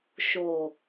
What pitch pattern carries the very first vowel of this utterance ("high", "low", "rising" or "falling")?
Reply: low